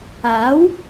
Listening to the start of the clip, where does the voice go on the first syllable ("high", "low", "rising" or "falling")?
rising